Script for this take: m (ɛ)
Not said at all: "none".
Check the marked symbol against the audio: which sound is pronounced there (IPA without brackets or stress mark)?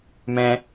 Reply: ɛ̃